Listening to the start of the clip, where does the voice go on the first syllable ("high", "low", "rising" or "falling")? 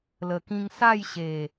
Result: low